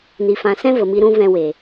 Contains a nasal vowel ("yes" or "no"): yes